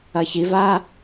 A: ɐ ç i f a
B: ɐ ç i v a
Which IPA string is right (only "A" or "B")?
B